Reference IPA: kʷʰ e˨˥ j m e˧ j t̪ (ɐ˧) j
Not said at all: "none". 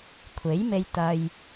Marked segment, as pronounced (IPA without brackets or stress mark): ɐ˧